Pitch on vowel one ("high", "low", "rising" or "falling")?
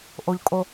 low